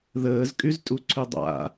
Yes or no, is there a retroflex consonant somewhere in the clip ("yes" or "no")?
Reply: no